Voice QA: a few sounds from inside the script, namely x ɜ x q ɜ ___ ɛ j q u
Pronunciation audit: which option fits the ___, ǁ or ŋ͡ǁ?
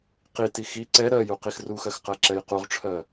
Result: ǁ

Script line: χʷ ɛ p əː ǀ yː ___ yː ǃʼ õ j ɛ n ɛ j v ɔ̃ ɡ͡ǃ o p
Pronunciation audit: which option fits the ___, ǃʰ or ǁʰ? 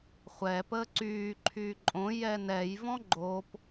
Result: ǃʰ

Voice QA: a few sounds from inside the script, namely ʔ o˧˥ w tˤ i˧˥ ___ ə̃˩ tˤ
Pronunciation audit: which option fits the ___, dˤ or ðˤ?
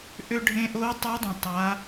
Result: dˤ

